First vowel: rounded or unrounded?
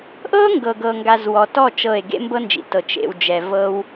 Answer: unrounded